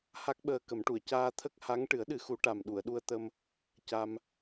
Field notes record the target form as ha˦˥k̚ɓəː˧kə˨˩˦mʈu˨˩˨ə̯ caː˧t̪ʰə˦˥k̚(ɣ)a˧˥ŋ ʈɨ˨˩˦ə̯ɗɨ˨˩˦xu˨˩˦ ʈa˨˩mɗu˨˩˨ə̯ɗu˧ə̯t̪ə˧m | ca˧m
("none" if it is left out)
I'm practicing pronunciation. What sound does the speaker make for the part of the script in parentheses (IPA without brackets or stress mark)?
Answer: h